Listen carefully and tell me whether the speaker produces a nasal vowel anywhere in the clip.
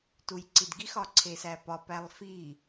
no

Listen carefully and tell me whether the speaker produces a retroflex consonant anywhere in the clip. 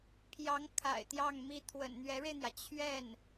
yes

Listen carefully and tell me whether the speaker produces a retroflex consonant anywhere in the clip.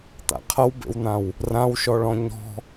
yes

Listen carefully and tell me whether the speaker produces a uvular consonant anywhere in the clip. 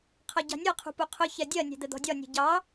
yes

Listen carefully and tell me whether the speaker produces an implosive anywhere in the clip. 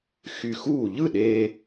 yes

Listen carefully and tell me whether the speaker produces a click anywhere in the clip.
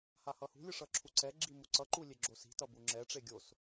yes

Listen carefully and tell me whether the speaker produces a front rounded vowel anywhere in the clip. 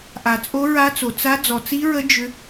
yes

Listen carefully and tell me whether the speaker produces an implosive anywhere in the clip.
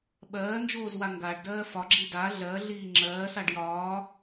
yes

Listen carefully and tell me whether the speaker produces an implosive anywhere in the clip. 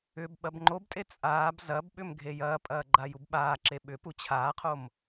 yes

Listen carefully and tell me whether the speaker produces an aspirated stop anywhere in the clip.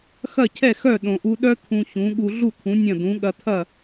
yes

